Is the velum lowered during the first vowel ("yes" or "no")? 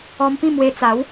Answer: no